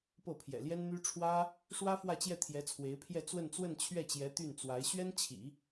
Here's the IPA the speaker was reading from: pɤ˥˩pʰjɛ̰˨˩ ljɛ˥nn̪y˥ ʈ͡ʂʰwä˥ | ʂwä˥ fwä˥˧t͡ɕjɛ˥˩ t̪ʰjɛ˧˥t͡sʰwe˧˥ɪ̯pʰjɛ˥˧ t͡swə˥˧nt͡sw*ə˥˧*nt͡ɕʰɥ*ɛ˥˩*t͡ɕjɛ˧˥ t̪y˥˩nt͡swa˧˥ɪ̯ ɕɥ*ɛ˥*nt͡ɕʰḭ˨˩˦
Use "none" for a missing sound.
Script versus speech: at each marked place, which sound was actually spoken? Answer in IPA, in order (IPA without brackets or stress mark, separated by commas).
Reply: ə˥˧, ɛ˥˩, ɛ˥